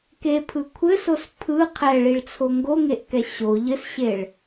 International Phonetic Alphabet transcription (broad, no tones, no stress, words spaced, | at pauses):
kepʰɯ kʷʰɘsos pʰɯ qʰɛɭiɭt͡sʰo ŋɡoŋeʔkɛ ɕo ʎɘsɕeɭ